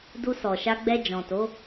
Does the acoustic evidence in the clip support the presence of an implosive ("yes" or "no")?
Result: no